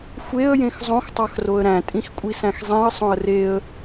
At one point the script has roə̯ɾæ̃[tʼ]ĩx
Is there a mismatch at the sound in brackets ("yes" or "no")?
no